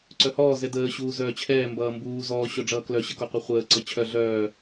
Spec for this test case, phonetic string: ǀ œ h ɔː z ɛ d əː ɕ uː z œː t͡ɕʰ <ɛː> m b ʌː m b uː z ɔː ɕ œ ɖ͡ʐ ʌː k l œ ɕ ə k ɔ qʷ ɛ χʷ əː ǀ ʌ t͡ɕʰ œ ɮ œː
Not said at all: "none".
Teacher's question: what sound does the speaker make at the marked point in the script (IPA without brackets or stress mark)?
ɛː